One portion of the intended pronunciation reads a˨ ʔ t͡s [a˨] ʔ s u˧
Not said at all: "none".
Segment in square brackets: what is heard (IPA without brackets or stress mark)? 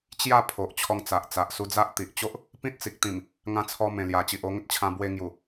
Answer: a˨